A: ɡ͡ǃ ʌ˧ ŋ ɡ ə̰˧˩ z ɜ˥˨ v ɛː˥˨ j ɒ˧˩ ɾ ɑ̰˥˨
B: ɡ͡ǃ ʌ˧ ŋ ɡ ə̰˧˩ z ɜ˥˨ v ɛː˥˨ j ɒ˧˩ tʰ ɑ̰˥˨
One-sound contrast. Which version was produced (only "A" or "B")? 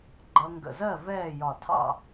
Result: B